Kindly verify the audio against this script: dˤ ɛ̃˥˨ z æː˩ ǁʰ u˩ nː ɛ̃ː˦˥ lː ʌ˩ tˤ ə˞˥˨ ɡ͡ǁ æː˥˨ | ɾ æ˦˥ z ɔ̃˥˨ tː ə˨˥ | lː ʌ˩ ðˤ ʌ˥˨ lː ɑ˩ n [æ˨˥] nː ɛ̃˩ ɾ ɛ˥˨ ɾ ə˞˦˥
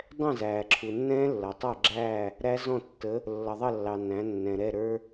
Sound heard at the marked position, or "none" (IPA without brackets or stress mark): æ̃˨˥